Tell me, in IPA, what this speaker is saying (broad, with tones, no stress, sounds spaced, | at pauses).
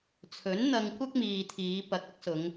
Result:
t͡sʰ ɵ˨˥ n n̪ ɐ˧ ŋ kʷ ɐ˥ k̚ m iː˨ t̪ʰ iː˨˧ p ɐ˨ k̚ ɐ˥ k̚ s ʊ˨˧ ŋ